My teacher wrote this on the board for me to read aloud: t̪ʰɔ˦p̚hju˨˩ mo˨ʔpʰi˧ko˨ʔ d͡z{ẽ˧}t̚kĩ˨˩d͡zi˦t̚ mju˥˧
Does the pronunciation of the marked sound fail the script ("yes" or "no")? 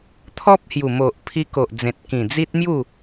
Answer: yes